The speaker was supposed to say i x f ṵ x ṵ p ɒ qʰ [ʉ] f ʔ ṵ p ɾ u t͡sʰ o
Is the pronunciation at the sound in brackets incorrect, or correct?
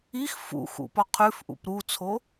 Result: correct